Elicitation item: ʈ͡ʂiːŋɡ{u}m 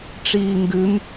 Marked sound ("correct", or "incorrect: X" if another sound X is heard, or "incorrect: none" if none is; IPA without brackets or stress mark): incorrect: ʉ